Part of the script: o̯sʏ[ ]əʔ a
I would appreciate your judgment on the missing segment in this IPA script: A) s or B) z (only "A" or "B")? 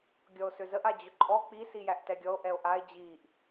B